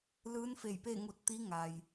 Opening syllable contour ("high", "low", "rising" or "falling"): rising